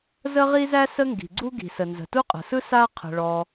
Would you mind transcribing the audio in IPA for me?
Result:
zə˥ʁi˥zæ˥ sə˥ŋɡi̤˩ɡ͡ǀu˥ ɡi̤˩sə˩ nzə̤˩tu˥qʼə̤˩sɯ˥ sa˥qʰə̤˩ ɭɔ˩

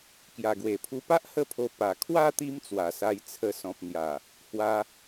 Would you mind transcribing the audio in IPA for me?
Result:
kja˨˩ɡwe˨˩pʰu˧pa˦ʔ hə˥˧pʰo˧ pa˨˩ kʰwa˥˧ t̪i˦mt͡swa˨˩sa˧j t͡sʰə˧sɔ̃˨p̚ n̪ja˨˩ | hwa˧

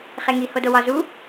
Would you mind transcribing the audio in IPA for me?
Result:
χeŋi hodowɒ zu

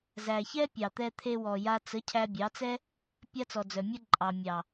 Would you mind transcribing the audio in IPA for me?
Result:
zæ˨ çɛ˦ pʲɑ˨t̪ɛ˧t̪ʰe˧ wɔ˨ja˧ t͡sə˨˦ cʰæ˧bʲɑ˨˦t͡sɛ˦ | pʲa˦t͡sɔ˨d͡zœ˨mʲə˦ ǃʼɑ˨mʲɑ˨

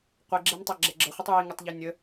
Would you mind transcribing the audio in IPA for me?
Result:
qʷeɡ͡ǁɛmtˤaɡ͡ǁɛ ɡ͡ǁəχʷitˤ jiŋɛtˤʎi nʲə

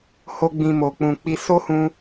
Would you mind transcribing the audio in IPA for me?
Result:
ho˧ ɡ͡bĩ˨ mo˨k͡pũ˨k͡pi˧ so˦hũ˧

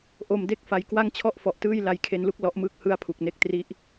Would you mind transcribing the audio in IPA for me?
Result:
ʔo˧mde˥˩k̚fa˧j kwa˥˩ŋt͡ɕʰɔ˥˩ʔfɔ˨˩ʔtɯː˥˩j la˧jkʰe˧nlu˥˩k̚ lɔ˦˥ʔmɯː˦˥k̚ hɯ˦˥a̯pʰu˨˩k̚ne˥˩k̚tri˦˥ʔ

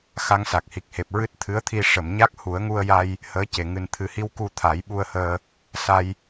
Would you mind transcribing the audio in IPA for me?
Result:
xa˧ŋsa˨˩k̚hi˨˩k̚he˨˩p̚ ɹɨ˦˥t̚t̪ʰɨ˧˥ə̯t̪ʰi˧ ʂə˨˩˨mɲa˦˥k̚ hu˨˩˦ə̯ŋu˧ə̯ja˧j | həː˧˥ce˨˩ ŋɨ˨˩n t̪ʰɨ˨˩hi˧w ku˧ t̪ʰa˨˩˦jɓu˧ə̯həː˧ | sa˧j

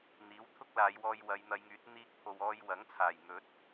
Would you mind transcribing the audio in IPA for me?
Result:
n̪iː˨˥wt̪ʰʊ˥k̚laː˨˧j wɔː˧jwɐ˨˧jn̪ɐ˨˧jŋyː˨˥t̚ n̪iː˧k̚pʰo˨wɔː˧j wɐ˨˥ŋt͡sʰaː˨˩jn̪ɵ˨˥t̚

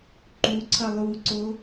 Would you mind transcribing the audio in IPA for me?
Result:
ǃuǀʰʌ lˠuǀo

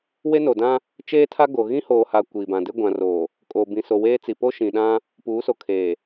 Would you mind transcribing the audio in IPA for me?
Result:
we˦no˨dã˦ | t͡ʃeː˦tʰa˦ ɡo˨ ɣĩ˦hoː˨ha˨ kʷiː˨bã˨de˦ ɡʷã˨roː˨ | kʼoː˨bĩ˨ so˨weː˦ t͡si˨po˦ ʃĩ˨ɗã˦ | puː˨˦so˨kʰeː˨

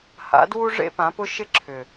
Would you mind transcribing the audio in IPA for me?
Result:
ha̰˩˥ dwu˦ʐḛ˦pã˩˥pʊ˦ ʃɪ˦ǁʰʏ˨

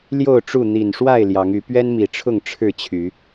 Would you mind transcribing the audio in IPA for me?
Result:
ljo˥˨ʊ̯ʈ͡ʂu˥˨ n̪i˨˩nʂwa˥˨ɪ̯ ljɑ˨˦ŋy˨˦ pɥɛ˦nmi˨˩ʈ͡ʂʰʊ˥˨ŋ ʈ͡ʂʰɻ̩˥˨t͡ɕʰy˨˦

